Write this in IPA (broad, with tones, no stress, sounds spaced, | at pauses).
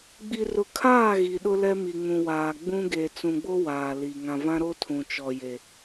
ɡ͡b i˨ r ʊ˨ kʰ aː˦˨ ɣ i˨ ɗ ʊ˦ l ɛ˦ m i˨ ŋ ũ˨ w aː˨ ɡ͡b ũ˦ ɡ e˨ t͡s ũ˨ ɡ͡b o˦ w aː˨ l i˨ ŋ ã˨ v ã˦ ɾ o˦ tʰ ũ˨ t͡ʃ ɔ˨ j e˨